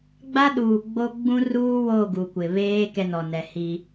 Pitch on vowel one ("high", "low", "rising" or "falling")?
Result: high